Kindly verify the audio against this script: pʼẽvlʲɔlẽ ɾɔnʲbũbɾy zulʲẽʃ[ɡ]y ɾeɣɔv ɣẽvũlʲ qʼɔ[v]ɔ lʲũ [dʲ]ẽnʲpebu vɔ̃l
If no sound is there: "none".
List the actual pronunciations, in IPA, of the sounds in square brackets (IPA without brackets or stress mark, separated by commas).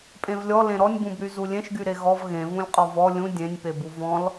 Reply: ɡ, v, dʲ